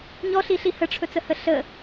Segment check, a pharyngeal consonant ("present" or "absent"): absent